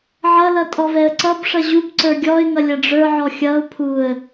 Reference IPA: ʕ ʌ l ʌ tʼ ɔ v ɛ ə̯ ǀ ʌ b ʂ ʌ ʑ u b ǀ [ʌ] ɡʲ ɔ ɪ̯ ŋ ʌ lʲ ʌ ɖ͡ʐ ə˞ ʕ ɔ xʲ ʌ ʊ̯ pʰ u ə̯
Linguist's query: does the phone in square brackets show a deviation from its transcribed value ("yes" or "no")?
yes